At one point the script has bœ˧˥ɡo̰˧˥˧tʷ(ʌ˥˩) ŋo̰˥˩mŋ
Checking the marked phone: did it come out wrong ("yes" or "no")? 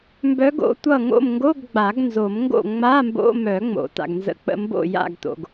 no